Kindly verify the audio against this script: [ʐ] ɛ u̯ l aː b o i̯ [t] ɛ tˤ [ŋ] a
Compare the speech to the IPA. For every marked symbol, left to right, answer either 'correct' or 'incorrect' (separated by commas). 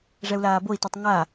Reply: correct, correct, correct